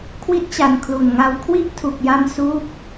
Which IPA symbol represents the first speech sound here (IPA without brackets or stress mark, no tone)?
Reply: kʰ